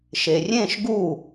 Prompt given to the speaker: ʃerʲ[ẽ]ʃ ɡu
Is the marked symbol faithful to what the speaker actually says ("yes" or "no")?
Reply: yes